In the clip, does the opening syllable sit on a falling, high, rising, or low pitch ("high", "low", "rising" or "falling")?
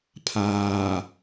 low